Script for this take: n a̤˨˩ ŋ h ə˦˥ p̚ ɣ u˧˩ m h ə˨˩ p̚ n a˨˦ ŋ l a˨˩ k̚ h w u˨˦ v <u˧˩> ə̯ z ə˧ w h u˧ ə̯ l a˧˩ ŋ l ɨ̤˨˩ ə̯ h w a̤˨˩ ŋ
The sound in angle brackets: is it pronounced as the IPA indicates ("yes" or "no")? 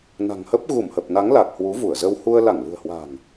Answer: yes